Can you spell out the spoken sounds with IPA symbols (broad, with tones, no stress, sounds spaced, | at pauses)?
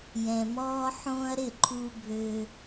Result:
j ɛ̃˩ m ɔː˧ ħ õː˧ ɐ̯ ɾ ɪ˥˩ ǃʰ u˧ bʱ ø˧